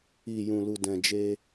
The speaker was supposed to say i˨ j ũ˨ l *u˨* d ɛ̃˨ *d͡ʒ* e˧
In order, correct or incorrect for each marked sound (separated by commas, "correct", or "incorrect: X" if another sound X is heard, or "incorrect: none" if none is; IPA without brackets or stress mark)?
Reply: correct, correct